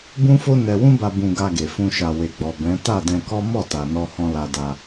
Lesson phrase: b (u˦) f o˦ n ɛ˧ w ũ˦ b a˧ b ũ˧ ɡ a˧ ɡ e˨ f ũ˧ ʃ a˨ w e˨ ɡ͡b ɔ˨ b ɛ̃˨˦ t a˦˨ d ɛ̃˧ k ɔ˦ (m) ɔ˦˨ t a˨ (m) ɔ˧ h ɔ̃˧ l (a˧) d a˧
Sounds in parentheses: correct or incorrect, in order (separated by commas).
incorrect, correct, incorrect, correct